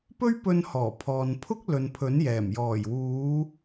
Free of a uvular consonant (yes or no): yes